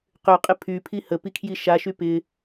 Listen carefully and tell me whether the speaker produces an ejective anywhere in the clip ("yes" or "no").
yes